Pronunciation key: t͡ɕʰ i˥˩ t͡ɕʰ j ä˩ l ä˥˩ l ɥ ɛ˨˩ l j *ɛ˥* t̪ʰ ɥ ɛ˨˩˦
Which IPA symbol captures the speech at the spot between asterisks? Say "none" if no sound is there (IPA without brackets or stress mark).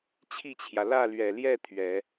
ɛ˥˩